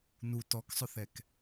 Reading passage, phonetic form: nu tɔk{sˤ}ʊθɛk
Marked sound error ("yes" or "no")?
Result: no